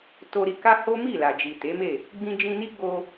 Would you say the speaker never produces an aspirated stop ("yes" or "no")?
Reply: yes